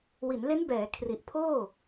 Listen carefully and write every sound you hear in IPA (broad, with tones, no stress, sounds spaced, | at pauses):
w i˩˦ n l e˦˥ n b ɛː˩˦ kʰ r i˨˩ ʔ pʰ oː˥˩